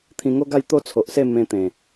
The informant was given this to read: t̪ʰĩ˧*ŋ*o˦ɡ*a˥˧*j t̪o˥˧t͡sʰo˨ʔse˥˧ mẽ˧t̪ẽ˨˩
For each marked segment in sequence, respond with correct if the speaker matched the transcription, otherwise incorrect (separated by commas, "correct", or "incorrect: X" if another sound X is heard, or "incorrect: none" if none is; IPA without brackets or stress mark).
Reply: correct, correct